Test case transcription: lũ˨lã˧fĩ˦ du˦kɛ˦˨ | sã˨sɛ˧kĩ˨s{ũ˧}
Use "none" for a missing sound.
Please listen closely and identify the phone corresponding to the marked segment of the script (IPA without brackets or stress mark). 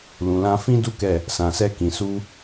u˧